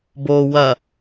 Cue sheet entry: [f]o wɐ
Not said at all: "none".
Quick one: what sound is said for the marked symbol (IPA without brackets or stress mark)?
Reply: b